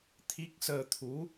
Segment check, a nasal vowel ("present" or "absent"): absent